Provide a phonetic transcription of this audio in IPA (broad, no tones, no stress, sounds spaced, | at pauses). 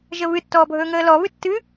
ʒ ə β ɨ tː ɔː bʱ ɵː ŋ əː l ɔ β ɨ tː ɨ